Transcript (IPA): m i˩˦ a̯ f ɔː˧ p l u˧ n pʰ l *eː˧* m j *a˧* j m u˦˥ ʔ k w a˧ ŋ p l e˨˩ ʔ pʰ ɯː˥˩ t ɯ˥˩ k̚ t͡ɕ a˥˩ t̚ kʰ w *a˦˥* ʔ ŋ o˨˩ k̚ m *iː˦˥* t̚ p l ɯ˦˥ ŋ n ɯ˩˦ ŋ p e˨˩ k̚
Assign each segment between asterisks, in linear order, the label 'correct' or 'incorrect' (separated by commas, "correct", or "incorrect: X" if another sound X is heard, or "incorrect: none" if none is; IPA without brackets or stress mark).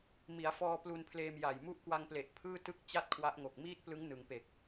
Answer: correct, incorrect: a˨˩, correct, incorrect: iː˥˩